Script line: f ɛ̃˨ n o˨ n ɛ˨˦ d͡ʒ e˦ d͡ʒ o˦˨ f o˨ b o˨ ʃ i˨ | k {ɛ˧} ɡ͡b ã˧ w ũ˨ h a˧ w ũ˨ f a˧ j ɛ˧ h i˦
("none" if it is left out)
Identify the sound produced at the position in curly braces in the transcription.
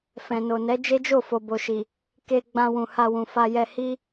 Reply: e˧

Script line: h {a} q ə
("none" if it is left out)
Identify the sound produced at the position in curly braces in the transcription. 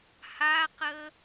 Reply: a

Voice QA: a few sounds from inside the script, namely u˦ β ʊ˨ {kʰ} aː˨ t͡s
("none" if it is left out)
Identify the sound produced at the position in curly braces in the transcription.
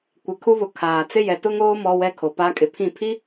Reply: kʰ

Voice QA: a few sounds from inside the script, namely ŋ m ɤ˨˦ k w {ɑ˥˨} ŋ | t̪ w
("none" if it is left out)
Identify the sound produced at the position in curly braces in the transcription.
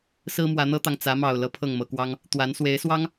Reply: ɑ˦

